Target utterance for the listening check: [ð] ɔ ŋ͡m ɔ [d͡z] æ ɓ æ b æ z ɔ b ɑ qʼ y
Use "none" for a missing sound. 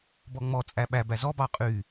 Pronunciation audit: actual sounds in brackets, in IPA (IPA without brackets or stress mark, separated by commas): b, t͡sʼ